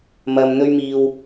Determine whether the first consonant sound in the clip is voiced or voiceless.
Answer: voiced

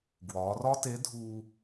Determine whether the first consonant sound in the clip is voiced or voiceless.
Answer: voiced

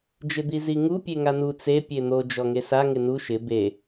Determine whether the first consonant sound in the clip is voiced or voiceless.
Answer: voiced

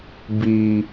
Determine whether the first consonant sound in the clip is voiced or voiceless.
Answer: voiced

